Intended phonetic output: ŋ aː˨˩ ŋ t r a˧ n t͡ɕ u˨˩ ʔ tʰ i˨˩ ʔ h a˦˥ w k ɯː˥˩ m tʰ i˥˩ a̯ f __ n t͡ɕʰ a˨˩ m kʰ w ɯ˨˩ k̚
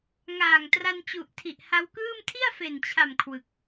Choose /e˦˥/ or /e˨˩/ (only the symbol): e˨˩